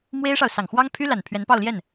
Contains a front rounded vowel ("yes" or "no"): yes